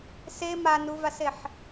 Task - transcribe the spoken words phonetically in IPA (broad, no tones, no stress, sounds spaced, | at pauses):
s e m a n u v a s e ħ